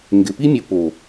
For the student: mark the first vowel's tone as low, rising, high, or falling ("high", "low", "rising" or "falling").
low